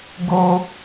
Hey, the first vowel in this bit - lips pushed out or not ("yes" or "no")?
yes